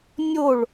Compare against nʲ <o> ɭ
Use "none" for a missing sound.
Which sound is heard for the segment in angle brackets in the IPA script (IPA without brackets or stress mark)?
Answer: o